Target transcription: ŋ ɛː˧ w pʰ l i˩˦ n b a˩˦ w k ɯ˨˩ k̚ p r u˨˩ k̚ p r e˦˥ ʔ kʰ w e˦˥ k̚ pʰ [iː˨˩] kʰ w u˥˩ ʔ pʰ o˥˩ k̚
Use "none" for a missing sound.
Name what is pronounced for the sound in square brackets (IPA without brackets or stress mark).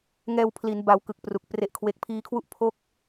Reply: iː˦˥